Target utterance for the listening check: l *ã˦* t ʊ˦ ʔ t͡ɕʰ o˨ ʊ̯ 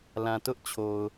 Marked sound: incorrect: ã˨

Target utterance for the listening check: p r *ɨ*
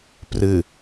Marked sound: correct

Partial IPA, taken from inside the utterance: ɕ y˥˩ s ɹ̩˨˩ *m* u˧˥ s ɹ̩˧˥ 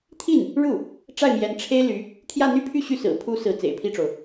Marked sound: incorrect: pʰ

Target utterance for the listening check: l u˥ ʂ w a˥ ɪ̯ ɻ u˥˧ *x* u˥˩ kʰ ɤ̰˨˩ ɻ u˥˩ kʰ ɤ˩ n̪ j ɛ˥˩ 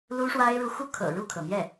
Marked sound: correct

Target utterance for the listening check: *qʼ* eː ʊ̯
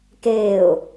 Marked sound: incorrect: k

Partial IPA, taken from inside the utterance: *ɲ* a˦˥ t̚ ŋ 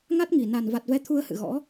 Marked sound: incorrect: ŋ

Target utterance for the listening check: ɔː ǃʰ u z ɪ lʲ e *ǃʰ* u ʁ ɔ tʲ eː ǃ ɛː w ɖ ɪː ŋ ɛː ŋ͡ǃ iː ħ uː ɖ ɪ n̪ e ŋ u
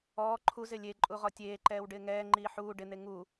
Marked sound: incorrect: ǃʼ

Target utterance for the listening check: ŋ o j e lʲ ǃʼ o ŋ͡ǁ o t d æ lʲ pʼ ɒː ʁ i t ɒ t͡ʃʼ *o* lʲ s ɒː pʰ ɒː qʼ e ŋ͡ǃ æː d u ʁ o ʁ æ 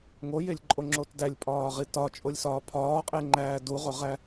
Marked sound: correct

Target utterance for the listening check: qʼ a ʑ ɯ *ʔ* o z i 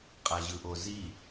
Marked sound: correct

